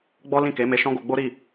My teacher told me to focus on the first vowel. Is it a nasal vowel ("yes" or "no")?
no